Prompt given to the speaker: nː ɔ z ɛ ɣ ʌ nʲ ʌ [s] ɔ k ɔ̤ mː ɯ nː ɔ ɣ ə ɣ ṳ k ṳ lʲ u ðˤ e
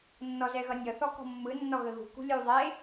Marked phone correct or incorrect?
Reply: incorrect